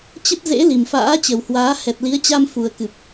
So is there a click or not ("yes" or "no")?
no